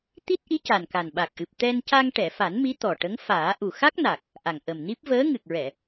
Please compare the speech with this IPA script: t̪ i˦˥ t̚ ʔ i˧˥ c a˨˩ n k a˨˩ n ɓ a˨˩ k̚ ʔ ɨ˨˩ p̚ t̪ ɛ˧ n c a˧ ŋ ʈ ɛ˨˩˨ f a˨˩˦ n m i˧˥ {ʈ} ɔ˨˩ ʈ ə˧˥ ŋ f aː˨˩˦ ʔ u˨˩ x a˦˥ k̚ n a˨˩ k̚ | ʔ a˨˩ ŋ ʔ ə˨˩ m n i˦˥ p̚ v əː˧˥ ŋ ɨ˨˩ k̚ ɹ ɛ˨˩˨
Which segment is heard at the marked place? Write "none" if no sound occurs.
t̪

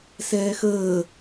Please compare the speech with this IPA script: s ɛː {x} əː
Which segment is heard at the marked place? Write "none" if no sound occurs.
x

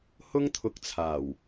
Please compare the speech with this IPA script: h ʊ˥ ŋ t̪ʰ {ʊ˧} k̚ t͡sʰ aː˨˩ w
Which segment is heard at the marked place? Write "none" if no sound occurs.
ʊ˧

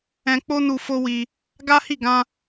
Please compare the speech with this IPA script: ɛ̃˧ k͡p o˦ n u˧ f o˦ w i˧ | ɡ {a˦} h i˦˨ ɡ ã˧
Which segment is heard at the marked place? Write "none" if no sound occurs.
a˦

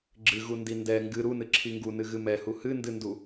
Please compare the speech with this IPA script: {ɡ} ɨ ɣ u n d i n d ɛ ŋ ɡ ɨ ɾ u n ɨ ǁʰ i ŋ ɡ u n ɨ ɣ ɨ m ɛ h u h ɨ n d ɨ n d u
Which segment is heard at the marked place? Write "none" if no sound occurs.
ɡ͡ǁ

